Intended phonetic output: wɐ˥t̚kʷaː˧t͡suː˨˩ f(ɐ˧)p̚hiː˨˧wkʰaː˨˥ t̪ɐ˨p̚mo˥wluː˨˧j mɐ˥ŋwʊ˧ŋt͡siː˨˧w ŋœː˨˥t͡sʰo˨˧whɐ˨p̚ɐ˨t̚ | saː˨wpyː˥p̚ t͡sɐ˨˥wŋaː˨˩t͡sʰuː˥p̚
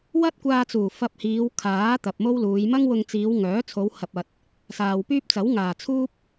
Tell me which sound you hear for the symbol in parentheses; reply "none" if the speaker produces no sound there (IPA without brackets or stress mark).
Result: ɐ˧